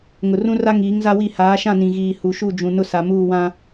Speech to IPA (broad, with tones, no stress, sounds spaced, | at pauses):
ŋ ʊ˨ r ũ˦ r a˦ ŋ iː˨˦ ŋ z a˦ w i˦˨ h aː˨˦ ʃ ã˦˨ n ĩ˨ ɣ iː˨ h u˨ ʃ u˦˨ d͡ʒ ũ˨ n ʊ˦ s a˨ m uː˦˨ w ã˦